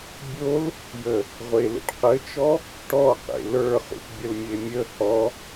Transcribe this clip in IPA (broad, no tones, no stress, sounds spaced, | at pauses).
bʲ o l | j ə | ʁʷ e l ḛ ʈ q ɘ t͡ʃ ɔ | ʈ ɔ q ḛ l ə˞ χ ṵ ʈ bʲ ə l mʲ e mʲ ə h ɔ